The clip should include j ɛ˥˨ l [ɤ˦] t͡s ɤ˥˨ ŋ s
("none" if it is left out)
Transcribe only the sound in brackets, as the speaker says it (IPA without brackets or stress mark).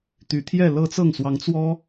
ɤ˦